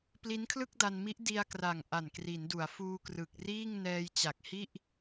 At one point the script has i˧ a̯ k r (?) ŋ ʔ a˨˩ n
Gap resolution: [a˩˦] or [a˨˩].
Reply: a˨˩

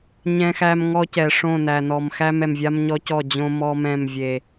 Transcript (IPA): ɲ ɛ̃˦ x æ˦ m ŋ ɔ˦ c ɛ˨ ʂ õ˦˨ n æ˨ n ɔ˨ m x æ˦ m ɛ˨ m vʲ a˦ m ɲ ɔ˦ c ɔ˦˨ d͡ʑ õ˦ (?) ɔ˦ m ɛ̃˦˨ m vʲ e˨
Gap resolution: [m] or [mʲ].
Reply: m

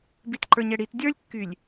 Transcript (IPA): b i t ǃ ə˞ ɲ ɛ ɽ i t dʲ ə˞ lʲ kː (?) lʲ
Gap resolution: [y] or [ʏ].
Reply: y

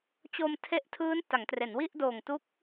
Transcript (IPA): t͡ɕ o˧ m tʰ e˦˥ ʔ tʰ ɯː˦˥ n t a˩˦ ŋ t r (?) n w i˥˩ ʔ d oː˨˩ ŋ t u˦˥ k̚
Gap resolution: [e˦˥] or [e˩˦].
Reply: e˩˦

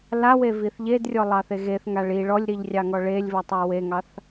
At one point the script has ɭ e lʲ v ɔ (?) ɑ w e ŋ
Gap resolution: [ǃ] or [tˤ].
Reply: tˤ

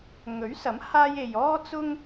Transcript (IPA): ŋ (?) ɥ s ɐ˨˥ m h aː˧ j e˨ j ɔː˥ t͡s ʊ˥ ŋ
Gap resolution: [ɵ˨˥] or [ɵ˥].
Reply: ɵ˨˥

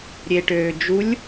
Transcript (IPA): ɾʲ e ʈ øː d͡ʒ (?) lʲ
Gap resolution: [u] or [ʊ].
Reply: u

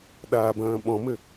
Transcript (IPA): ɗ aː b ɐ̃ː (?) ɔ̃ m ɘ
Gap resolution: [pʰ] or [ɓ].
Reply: ɓ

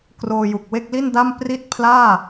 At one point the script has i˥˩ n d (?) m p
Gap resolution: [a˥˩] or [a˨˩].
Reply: a˥˩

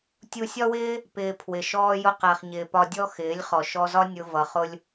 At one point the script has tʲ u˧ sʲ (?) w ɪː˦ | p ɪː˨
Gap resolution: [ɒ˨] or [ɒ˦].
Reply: ɒ˦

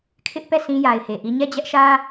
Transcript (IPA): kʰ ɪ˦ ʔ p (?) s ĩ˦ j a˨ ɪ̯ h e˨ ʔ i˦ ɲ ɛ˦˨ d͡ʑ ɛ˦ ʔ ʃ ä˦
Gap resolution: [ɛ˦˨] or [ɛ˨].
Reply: ɛ˦˨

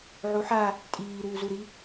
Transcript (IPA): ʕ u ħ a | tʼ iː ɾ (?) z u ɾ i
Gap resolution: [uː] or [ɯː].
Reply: uː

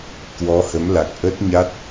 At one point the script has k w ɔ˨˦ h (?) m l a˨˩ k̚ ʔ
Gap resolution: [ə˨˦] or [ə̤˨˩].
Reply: ə˨˦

